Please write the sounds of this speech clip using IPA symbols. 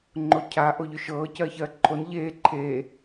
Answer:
ŋ͡ǃocʰa ʔoʎʏʃɤː cɜːçɜːǃʰon ʎeː ǃʰeː

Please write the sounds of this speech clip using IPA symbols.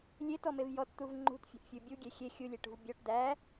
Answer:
lʲetɔmev jɔtt̪uv ŋ͡ǃṳtfʲo̤ʔfʲu bʲuɡʲe xʲe xʲulʲeʈṳv bʲɔʈ d̪æ

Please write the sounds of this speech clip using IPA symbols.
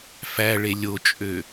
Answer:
fæɭe lʲot͡ʃʼø

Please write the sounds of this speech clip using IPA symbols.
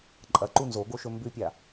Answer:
ǃʼɐ ǃunzoɡoʃɵ mbʉpʲa

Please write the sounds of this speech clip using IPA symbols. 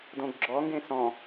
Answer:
dõɡɡ͡ǁɔŋɡẽ sɔ̃

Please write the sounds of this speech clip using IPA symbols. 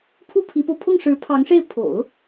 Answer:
pʰu˥pʰi˧˥po˧ʊ̯ pʰʊ˥˩ŋʂɻ̩˧˥pʰɑ˧˥ŋʂe˥˩ɪ̯ pʰo̰˨˩˦ʊ̯

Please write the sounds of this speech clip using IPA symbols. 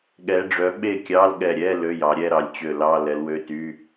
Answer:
ɠɛ˨˦ɖ͡ʐœ˨˦ ɓe˥˩kʲɑ˧˥˧lɠɛ˧˩ɾʲɛ˧˥˧ lø˧˥˧jɑ˨˦ɾʲɛ˥˧ɾɑ˨˦lʲ t͡ɕø˧˩lɑ˧˥˧ lɛ˨˦lwø˧˥˧ty˧˥˧

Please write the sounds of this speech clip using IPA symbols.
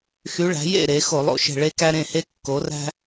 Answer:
xy˧˥ɭæ̤˩˥ jḛ˥˨ ɾe˩˥ xo˧˩˧lˠo̰˧˩ʃe̤˧˩ ɭe˥kæ˥ ɾẽ˥˨he˥ kːo˩˥ræ̤˥

